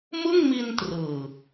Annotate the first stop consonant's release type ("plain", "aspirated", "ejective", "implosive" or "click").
plain